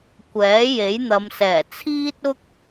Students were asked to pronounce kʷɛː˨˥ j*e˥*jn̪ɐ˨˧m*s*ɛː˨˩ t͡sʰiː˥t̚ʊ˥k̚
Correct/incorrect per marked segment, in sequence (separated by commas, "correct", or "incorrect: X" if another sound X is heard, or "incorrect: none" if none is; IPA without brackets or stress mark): incorrect: e˨˥, correct